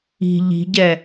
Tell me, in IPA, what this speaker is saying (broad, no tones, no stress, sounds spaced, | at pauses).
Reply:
i̤ ʎ i̤ ɟ ɛ